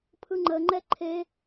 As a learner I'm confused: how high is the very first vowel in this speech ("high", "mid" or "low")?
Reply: high